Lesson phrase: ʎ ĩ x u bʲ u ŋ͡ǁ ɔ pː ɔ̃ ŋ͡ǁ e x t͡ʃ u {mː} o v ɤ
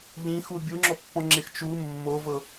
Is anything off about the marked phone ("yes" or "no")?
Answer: no